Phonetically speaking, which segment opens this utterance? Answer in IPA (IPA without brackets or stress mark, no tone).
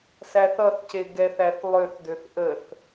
s